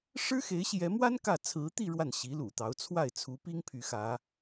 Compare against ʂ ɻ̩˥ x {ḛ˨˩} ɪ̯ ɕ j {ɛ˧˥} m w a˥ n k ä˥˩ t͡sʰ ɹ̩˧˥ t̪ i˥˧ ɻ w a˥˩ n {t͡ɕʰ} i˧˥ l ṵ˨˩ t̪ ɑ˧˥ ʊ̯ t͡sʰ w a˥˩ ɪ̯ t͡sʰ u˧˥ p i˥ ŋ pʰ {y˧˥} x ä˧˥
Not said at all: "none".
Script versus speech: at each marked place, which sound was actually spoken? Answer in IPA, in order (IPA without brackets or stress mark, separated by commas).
e˧˥, ɛ˧˥, ɕ, y˧˥